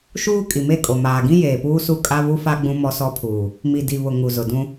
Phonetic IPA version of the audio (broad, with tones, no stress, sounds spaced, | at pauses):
ʃ uː˦ kʼ i˨ m e˦˨ kʼ o˨ m aː˨ ɡ ĩ˦ j eː˨ p uː˦ s u˦ kʼ a˦ β u˦ f a˦ ɡ͡b ũ˦ m ɔ˦ s ɔ˦ pʰ uː˨ | m i˨ d i˨ β ʊ˨ ŋ u˨ z ʊ˨ d ũ˦